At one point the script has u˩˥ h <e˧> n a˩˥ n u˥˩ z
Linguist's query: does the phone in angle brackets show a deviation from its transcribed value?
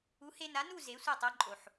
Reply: no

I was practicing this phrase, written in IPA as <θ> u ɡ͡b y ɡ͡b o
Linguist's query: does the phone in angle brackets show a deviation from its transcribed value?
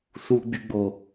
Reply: no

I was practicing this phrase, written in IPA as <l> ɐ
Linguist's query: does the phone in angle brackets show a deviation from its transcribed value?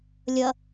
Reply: yes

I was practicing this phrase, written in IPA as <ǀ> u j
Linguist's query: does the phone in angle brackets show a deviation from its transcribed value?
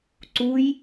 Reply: no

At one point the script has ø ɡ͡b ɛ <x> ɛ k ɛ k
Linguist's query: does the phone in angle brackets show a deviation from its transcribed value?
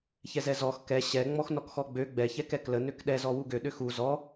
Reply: yes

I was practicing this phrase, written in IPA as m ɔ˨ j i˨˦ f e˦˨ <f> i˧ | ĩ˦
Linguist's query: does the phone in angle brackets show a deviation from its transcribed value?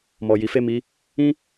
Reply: yes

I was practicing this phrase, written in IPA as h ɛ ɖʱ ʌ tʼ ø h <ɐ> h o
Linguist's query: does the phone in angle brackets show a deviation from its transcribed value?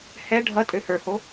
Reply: yes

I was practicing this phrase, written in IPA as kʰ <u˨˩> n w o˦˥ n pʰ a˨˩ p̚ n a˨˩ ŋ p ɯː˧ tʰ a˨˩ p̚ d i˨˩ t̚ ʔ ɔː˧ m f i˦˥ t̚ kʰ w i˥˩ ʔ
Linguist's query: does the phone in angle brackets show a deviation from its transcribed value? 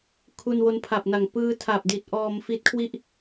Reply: yes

